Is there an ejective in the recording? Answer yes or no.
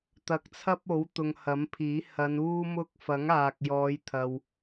no